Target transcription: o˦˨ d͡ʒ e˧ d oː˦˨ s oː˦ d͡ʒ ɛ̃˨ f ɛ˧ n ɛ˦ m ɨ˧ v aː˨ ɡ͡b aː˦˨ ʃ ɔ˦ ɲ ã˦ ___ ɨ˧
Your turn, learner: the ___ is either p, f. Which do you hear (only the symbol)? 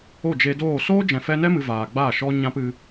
p